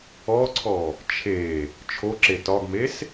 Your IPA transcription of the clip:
ɔǀʰɔ | t͡ʃʰe | t͡ʃʰoǁe tɒɡmes

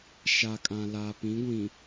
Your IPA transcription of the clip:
ʃa˨kʼã˨ laː˨pĩ˨˦ɡʷĩ˨

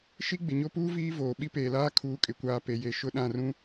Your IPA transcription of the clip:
ʃi˦ɡ͡bɪ˨ɲo˦puː˦ viː˦voː˨ ɓi˦peː˨laː˦ kʰuː˨kʼɪ˨kʷaː˨ pe˨je˨ ʃʊ˦˨ɗã˦˨rũ˦

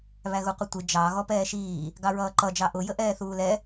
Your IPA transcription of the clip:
βæɣuqʷətʷɪ d͡ʒɑ ɣɔpɛːʃiː | ɡɑɹʌːǃʌ d͡ʒɑʔʊ jəʔɛːθuːlɛ

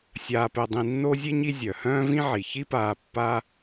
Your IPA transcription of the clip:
sʲaː˨pɛ˨dˤĩ˨nːo˦ zʲe˥ɲi˦ zʲœ˩hœ̃ː˥vĩ˥ʕi˩ çi˦paː˨ pːa˦

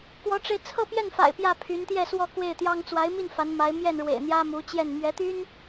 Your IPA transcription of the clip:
kwɔ˧˥ʈ͡ʂe˧ɪ̯ t͡sʰɤ˥˧pjɛ˥˩nfa̰˨˩ɪ̯ pjä˥˩pʰy˧˥nt̪jɛ˥˧swɔ˥˧ kwe˥˩ɪ̯t̪jɑ˥ŋ t͡swa˧˥ɪ̯mi˥˩n fa˧˥nma˧˥ɪ̯ mjɛ˥˩nɻwḛ˨˩ɪ̯n̪jä˥mu˧˥ t͡ɕjɛ˥˩n mɥɛ˧˥t̪y˥n

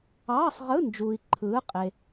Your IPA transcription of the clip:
ɑː˧˥˧sˤʁɯ˧˥˧ nd͡ʒuː˨i̯ǃʰɯː˨˦qʼe˨

